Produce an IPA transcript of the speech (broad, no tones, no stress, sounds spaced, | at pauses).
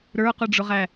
ɾ ə˞ q ʊ ɖ͡ʐ ʊ ʁ æ